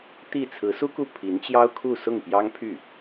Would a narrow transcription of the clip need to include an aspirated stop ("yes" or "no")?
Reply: yes